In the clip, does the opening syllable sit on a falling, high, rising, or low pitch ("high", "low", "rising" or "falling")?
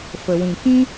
low